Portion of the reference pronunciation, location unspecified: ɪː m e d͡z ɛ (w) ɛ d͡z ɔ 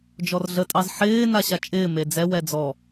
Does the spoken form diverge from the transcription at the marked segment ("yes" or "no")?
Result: no